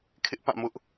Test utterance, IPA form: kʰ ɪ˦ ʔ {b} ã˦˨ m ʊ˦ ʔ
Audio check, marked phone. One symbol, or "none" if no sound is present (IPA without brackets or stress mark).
p